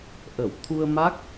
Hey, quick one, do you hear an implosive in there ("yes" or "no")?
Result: no